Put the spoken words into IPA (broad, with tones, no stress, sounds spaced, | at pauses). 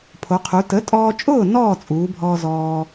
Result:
pʰ o˩˧ qʰ u˩˧ t ə˩˥ tʼ ɔː˧ t͡ʃʼ ʊː˥˨ n ɔː˥˨ t͡sʼ uː˩˧ bʱ ɔː˧ z ɔː˧